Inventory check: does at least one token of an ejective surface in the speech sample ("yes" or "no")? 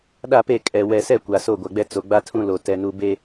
yes